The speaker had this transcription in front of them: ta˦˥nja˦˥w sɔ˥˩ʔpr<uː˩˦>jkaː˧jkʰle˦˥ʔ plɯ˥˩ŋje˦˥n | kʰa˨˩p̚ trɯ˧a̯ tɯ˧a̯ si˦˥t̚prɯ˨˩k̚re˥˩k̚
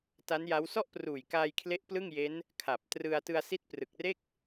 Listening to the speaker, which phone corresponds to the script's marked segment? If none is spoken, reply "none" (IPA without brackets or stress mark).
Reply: uː˨˩